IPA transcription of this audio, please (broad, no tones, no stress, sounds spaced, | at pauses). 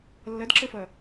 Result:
lː ʌ d ǁ ə f ʌ